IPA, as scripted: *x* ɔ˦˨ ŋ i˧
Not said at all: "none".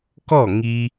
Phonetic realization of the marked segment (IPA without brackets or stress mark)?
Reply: k